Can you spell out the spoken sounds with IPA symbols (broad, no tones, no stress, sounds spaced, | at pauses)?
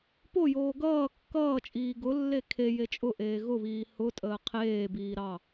p o j oː ɡ ʌː kː ʌː t͡ʃʼ iː ɡ ʊ lː e kʰ e j e t͡ʃʼ ʊ ʔ eː ɣ ʊ β iː h ʊ tʼ əː qʰ eː b iː ɾ ɑ